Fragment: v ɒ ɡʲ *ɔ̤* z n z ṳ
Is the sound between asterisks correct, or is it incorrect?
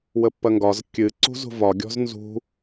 correct